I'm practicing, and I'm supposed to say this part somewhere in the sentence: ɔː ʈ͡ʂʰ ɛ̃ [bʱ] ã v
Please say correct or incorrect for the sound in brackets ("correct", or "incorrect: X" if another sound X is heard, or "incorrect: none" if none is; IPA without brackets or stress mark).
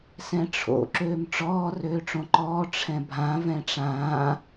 correct